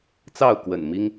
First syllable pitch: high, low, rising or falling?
falling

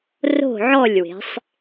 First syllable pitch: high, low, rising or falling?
falling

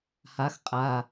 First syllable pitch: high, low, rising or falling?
rising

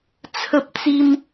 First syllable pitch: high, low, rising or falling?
high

